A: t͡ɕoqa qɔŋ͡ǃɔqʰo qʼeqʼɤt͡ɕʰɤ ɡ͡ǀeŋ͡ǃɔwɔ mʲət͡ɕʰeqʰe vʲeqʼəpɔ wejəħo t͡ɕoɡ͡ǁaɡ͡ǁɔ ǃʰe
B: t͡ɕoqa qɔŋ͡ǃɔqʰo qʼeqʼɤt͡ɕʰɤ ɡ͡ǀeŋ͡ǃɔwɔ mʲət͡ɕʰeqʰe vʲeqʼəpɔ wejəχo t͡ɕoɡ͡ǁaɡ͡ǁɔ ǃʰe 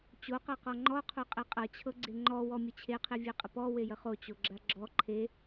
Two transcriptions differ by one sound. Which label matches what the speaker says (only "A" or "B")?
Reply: B